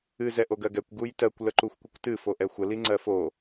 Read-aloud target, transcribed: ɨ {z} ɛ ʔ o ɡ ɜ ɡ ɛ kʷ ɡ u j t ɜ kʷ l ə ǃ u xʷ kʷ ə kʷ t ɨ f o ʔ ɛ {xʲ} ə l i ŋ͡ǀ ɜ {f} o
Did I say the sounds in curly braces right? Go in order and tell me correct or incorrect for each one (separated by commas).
correct, incorrect, correct